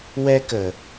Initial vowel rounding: unrounded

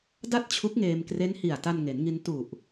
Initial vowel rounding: unrounded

